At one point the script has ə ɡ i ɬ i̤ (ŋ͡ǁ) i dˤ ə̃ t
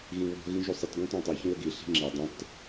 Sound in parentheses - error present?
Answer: no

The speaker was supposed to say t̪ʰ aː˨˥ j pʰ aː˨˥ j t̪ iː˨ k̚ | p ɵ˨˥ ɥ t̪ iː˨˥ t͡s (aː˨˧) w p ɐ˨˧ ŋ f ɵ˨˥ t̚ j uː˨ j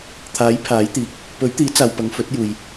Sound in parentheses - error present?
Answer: yes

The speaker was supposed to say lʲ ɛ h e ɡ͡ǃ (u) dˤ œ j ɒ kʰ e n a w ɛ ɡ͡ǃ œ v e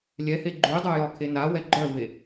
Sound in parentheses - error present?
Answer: yes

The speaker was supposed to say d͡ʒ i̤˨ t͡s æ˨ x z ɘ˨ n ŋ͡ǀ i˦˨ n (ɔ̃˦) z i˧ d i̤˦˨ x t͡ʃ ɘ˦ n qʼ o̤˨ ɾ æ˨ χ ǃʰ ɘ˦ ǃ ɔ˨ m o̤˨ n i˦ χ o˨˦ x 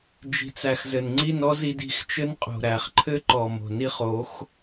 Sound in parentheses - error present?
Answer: yes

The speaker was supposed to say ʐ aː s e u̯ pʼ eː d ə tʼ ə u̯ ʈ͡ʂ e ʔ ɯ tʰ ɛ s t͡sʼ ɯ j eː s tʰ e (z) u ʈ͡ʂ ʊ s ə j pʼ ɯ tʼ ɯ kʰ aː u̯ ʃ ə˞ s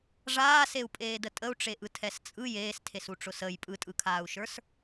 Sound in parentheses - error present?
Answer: yes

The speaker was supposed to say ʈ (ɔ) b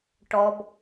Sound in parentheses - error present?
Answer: no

